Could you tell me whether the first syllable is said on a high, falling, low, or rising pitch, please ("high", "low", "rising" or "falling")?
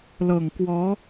low